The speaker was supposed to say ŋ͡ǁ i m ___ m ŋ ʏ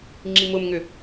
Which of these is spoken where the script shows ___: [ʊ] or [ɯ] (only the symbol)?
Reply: ʊ